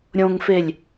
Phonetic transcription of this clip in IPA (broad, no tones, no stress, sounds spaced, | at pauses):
ɾʲ õ ŋ f e lʲ